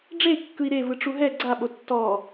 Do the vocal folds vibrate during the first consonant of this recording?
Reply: yes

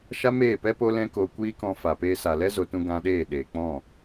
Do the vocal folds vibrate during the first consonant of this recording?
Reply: no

